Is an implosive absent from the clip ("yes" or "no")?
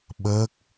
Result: no